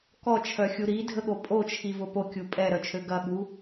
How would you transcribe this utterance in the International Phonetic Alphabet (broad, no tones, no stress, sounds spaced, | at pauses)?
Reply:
k ɔ t͡ʃʰ œ xʲ u ɾ i dʱ ə ɠ o pʼ o t͡ʃʰ i v ʊ p o kʲ u pʼ ɛ ɾ œ t͡ʃʰ ø ɡ ɐ ɠ u